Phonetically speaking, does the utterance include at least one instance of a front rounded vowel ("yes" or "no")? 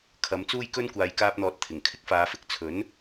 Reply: no